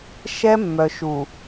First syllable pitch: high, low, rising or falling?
high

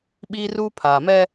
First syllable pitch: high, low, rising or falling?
high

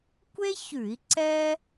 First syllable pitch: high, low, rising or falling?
high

